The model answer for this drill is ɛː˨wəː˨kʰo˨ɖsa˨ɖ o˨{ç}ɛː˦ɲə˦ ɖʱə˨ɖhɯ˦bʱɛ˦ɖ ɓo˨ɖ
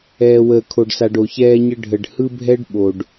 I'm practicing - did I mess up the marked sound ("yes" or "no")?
no